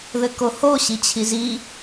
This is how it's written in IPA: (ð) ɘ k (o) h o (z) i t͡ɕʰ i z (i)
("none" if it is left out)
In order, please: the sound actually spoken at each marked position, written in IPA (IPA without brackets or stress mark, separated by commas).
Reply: ð, o, ɕ, i